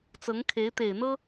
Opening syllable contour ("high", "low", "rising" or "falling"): rising